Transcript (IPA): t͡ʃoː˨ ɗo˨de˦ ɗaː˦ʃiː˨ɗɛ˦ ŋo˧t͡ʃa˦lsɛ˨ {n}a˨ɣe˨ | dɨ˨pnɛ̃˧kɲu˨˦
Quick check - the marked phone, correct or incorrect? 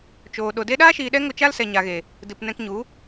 incorrect